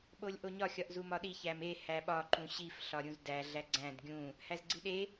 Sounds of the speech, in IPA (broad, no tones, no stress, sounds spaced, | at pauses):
ɓ o lʲ ʔ o ɲ ɒ xʲ ɒ ʔ z u m ɒ ɗ i ç æ m e h æ ɓ ɒ ǃ ũ ɕ i f ɬ ɒ ɾʲ ũ z d æ ɮ æ ɡ͡ǀ æ̃ d ɡʲ ũ | h æ z ɡ͡ǀ i ɗ e